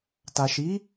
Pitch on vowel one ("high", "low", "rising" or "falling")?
low